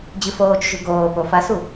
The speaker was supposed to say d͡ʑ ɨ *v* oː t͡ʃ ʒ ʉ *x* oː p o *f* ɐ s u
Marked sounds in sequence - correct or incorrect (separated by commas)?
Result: incorrect, incorrect, correct